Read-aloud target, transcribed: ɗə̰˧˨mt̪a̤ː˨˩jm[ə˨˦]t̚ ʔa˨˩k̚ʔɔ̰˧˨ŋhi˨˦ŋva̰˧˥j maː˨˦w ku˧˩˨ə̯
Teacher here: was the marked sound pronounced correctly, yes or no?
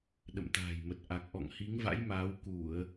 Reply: no